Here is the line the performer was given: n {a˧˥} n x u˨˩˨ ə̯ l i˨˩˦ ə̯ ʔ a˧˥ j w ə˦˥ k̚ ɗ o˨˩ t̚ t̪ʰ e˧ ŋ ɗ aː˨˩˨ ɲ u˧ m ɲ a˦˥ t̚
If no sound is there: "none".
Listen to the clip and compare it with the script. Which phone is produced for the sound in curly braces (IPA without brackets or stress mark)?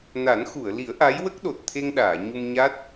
a˨˩˦